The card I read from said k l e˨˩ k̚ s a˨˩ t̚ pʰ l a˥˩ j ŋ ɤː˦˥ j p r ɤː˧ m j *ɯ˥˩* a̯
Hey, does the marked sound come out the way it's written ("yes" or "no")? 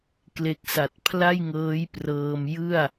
yes